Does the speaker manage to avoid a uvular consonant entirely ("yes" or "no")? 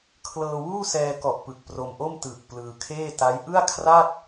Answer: yes